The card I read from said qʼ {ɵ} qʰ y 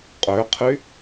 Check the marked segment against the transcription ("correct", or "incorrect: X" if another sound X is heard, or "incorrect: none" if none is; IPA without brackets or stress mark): incorrect: ø